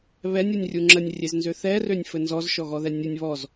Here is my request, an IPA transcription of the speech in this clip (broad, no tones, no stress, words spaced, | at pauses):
βɛnʲunʲrʲu ŋ͡ǁənʲrʲeznzø θɛrønʲfɘ nzɔzʃɔɣɔðɛ nʲɘnʲ βɔz